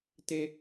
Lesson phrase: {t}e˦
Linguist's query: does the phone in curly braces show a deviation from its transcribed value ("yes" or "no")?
no